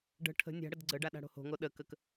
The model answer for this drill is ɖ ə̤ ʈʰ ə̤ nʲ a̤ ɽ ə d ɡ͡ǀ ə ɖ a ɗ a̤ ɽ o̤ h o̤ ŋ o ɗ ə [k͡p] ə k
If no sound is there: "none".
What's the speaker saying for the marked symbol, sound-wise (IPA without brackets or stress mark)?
k